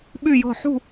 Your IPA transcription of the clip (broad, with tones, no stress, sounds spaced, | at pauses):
ɓ y˥˧ j ɔ̤˥˧ ħ ṳ˥˧